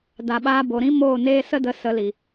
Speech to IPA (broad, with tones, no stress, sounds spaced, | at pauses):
d a˨ ɓ aː˧ b o˨ ɾ ĩ˦ m oː˦˨ n eː˦ s ə˦ d ə˧ s ə˨˦ l i˨